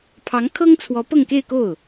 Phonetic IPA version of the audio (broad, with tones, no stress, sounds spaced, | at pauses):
pʰ ɑ˧˥ ŋ kʰ ɤ˥ ŋ t͡sʰ w ɔ˧˥ p ɤ˥˧ ŋ k e˥˧ ɪ̯ k o˥˩ ʊ̯